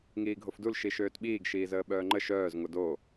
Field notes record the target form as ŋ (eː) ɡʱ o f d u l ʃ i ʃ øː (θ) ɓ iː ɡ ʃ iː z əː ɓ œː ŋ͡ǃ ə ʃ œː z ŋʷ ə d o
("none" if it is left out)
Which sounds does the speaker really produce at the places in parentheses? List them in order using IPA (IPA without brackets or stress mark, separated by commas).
iː, t